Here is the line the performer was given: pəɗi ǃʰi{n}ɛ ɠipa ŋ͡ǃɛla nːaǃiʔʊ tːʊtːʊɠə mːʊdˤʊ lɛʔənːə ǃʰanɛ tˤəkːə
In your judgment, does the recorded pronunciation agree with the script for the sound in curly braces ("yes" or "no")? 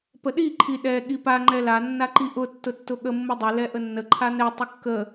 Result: no